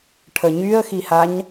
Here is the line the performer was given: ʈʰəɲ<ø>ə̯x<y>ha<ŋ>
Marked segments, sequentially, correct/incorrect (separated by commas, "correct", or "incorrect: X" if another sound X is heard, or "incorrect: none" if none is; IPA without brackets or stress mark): incorrect: y, incorrect: i, incorrect: ɲ